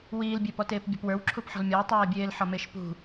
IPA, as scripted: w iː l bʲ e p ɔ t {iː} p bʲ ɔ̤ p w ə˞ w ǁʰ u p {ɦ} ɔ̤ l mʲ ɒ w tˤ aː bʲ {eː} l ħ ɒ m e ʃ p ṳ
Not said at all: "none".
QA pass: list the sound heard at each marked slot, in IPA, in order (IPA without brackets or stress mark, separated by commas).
eː, ħ, eː